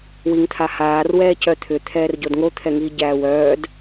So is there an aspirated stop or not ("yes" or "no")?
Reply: yes